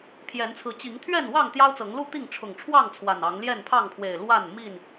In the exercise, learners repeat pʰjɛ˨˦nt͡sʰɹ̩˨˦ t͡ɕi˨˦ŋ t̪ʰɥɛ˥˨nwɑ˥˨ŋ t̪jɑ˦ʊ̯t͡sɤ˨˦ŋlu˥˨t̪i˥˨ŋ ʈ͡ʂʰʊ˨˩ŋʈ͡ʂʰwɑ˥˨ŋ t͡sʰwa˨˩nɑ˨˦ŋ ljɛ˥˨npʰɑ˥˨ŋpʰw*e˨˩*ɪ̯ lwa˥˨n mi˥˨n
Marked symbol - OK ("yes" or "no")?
yes